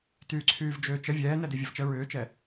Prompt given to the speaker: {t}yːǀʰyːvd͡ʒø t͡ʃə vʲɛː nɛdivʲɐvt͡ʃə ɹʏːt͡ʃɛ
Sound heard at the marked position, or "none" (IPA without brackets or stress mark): t